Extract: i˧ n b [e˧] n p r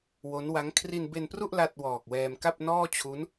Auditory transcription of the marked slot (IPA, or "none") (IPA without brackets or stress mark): e˧